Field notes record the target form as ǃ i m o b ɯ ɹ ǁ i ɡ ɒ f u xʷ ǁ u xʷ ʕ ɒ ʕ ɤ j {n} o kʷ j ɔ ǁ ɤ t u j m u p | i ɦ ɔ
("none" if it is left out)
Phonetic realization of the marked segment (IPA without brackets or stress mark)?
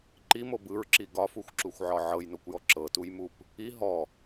n